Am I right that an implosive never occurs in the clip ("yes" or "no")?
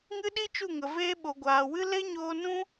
no